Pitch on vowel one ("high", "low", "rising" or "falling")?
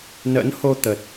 rising